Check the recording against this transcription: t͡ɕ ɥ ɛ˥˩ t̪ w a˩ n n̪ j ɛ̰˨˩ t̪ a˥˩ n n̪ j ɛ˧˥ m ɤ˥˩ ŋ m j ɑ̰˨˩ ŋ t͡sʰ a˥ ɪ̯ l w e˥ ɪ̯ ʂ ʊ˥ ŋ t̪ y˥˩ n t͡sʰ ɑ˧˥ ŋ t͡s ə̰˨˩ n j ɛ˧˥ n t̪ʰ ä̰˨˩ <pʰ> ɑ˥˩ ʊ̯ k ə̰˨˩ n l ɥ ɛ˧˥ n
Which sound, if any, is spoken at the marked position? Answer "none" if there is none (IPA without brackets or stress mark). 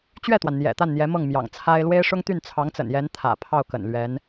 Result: pʰ